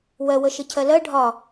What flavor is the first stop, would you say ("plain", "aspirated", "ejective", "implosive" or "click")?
aspirated